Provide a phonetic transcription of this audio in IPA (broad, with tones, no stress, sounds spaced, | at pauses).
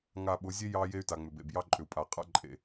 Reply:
ŋ a˨ ɓ ʊ˨˦ zʲ e˦ j ɑ˦ j e˦ y̯ t a˨ ŋ͡m ʏ˨ b ḛ˨ b j ɑ˦ ǃʼ ʏ˨ u̯ pʼ a˨ qʼ a̰˦ ǃʼ ḛ˨